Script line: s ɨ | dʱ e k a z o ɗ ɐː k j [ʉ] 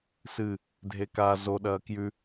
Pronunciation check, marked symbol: correct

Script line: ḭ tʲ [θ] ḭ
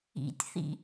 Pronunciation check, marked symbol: correct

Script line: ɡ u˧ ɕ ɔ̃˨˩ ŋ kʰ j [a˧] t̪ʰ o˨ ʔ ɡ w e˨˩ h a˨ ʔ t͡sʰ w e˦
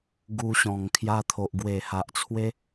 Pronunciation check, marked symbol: correct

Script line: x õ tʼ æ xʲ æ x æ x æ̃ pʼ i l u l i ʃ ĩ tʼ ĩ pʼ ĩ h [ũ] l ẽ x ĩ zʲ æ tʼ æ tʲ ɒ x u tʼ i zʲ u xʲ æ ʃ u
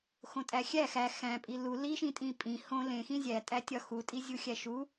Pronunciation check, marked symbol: incorrect: õ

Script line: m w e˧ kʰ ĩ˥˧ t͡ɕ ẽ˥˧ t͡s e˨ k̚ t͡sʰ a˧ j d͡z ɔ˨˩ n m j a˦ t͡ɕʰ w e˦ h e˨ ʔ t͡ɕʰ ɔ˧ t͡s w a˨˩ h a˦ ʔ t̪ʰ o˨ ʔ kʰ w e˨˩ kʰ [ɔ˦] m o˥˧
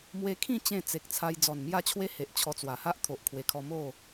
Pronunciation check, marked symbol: incorrect: ɔ˧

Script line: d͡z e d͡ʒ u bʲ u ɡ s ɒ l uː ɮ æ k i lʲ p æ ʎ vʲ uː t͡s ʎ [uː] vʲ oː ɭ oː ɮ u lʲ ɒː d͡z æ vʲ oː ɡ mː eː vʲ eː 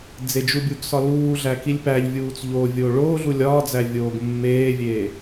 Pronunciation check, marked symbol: incorrect: oː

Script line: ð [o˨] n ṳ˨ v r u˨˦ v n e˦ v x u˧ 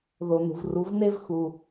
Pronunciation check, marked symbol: correct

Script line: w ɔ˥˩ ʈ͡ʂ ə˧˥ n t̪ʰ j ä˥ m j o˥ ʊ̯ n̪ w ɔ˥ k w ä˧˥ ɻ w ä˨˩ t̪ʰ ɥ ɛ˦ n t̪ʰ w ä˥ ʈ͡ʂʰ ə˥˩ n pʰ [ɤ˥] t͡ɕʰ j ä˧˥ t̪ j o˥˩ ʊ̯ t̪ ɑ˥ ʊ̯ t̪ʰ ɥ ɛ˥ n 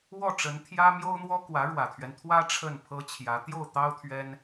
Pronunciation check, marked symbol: correct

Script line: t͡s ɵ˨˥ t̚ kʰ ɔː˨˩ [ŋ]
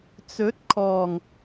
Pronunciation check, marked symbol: correct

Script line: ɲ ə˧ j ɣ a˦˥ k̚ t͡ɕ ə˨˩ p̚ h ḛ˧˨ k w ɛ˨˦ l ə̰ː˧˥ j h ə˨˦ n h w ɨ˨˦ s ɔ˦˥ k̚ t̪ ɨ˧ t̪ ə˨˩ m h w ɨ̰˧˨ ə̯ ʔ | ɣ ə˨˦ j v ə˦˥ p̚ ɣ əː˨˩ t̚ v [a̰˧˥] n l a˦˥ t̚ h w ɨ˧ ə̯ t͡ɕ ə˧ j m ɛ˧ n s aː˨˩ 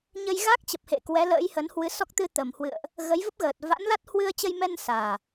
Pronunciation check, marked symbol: correct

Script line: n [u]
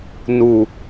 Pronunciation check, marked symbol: correct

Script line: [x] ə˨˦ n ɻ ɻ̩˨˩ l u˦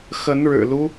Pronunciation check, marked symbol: correct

